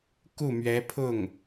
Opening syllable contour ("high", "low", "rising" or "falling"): falling